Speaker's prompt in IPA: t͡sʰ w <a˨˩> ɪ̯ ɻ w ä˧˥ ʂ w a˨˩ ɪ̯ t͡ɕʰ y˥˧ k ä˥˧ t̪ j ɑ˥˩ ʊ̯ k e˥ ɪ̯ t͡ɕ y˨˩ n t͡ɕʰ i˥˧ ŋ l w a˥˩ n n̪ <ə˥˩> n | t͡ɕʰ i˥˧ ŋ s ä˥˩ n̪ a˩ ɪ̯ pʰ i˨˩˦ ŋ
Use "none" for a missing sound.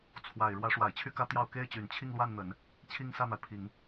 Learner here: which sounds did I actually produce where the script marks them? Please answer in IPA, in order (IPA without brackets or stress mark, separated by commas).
a˨˩, ə˨˩˦